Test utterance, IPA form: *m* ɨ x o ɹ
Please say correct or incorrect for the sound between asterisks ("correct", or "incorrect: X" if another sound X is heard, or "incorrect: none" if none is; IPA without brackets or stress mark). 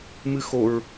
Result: correct